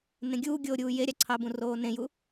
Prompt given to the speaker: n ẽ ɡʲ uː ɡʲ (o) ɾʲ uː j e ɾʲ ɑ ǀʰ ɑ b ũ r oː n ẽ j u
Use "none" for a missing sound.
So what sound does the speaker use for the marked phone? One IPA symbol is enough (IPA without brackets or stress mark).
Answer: oː